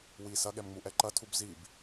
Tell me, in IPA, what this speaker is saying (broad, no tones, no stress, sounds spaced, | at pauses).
w i s ɐ ɠ ɛ m ŋ͡m u ʔ ɛ ǃ ɐ tʰ u b z i b